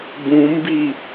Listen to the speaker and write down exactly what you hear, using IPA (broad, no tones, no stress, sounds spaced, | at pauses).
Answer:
b ũ m b i